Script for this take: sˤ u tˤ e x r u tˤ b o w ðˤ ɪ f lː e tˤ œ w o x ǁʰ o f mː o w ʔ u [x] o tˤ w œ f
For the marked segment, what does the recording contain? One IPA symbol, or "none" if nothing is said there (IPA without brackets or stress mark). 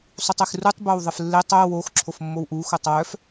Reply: x